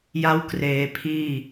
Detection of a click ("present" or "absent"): absent